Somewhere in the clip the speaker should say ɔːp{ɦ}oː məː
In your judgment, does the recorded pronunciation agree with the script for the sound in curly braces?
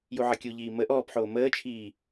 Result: no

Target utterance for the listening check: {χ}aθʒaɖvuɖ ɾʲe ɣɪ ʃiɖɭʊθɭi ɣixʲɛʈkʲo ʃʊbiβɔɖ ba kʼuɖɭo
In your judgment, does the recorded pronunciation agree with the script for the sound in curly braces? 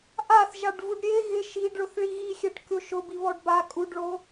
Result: no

